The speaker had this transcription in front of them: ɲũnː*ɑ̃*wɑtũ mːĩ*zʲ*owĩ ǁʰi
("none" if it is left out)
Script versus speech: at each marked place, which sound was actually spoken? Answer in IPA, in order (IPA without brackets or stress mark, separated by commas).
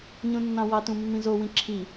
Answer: ɑ̃, z